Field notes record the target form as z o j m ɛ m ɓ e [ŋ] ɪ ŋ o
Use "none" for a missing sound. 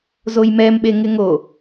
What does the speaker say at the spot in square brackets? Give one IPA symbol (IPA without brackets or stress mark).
ŋ